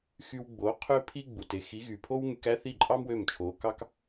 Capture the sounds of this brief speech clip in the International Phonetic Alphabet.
x y˧ w ɡ͡b o˩˥ qʰ ø˥ pʰ i˥ ɡ͡b u˩ t e˥˩ x i˩˥ ɣ y˩ pʰ o˥ w ŋ y˧ k æ˥ θ i˥˩ ǃʼ ɑ˥ m w ø˥˩ m t͡ʃʰ o˩˥ k ɑ˥ k

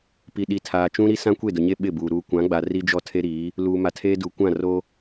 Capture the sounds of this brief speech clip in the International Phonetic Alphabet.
p i˨ ɗ i˨ tʰ aː˨ t͡ʃ ũ˦ ɾ i˦ s ã˦ kʷ e˦˨ d ʊ˨ ɲ e˦ ɓ ɪ˦˨ b uː˨ ɾ uː˨ kʷ ã˨˦ ɡ͡b a˨ r i˦ d͡ʒ ɔ˦ tʰ e˦ ɾ iː˨˦ | l uː˨ m a˨ tʰ eː˦ d u˨ kʷ ã˦˨ r o˦

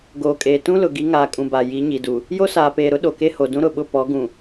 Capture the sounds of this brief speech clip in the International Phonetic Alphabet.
ɡ oː˨ kʼ eː˨ t ũ˦ l ʊ˨ ɡ i˨˦ ŋ aː˨ kʼ ũ˨ b a˨ j i˨˦ ɲ i˨ d u˨ | j o˦ s aː˨ p eː˨ ɾ ʊ˦ ɗ o˨ k e˦ h o˨ d ũ˦ ɾ ʊ˨ ɓ ʊ˦˨ p ɔ˨˦ ɡ ũ˨

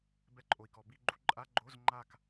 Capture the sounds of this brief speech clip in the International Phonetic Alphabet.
b ɛ˧˥˧ ǃʼ o˨ i̯ k ɔ˨ b i˥˧ ɡ͡ǃ u˥˧ ǃʼ a˧˥˧ ɡ͡ǃ o˧˥˧ z ŋ͡ǃ a˥˧ k

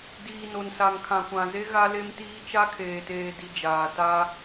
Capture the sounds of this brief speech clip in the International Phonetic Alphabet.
d iː˨ n o˨ n s a˨ ŋ kʰ ã˨ kʷ ã˨ z e˦ ɣ a˦ l e˦ m t iː˦ t͡ʃ a˦ kʰ eː˨ t eː˨ d i˨ d͡ʒ aː˨ t a˦

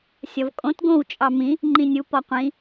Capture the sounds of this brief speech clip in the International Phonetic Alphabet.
sʲ ɒ v kʼ õ t ɡ õ w t͡ʃʼ ɑ m ĩ | ŋ͡ǃ ĩ nʲ u p ɒ qʷ ĩ

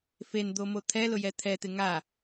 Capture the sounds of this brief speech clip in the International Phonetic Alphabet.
f e n d̪ o m o t̪ʰ ɛ l ʊ j ɛ t̪ʰ ɛ t̪ ɪ ŋ a

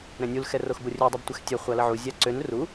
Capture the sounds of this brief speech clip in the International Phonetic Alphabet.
ɾ ɛ̃ nʲ u l x ɛ r o x b o rʲ ø dˤ ɛ b tʷ ɛ x tʲ ɛ χʷ a l ə ʕ u zʲ a ǀ ø n r u

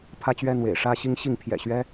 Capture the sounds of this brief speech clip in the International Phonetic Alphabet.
pʰ ä˦ t͡ɕ ɥ ɛ˦ n̪ w ḛ˨˩ ɪ̯ ʂ ä˦ ɕ i˦ ŋ ɕ i˥˨ ŋ pʰ j ɛ̰˨˩ ɕ ɥ ɛ˦

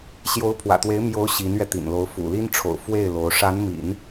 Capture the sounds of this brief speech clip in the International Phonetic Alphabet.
ɕ j o˧˥ ʊ̯ pʰ w ä̰˨˩ t̪ w e˧˥ ɪ̯ m j o˧˥ ʊ̯ ɕ i˧˥ n ɥ ɛ˧ t̪ ḭ˨˩ n l o˧˥ ʊ̯ f ṵ˨˩ l i˥ n ʈ͡ʂʰ o̰˨˩ ʊ̯ f w e˥˩ ɪ̯ l o˧˥ ʊ̯ ʂ a˧˥ n m ḭ˨˩˦ n

